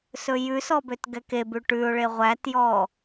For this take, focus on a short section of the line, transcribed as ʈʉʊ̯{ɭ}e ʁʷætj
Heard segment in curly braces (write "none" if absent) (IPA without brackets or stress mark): ɭ